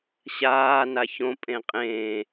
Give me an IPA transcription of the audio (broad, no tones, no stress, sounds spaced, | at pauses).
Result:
ɕ aː n a ç õ pʼ ẽ qʼ ẽː